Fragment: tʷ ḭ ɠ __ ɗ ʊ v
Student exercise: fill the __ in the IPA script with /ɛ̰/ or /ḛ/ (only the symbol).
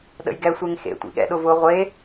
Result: ɛ̰